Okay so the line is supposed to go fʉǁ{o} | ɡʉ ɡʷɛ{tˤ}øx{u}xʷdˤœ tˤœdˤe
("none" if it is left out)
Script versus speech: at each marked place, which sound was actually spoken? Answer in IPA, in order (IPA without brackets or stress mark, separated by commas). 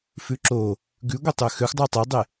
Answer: o, tˤ, ø